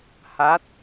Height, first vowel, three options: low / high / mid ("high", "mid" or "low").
low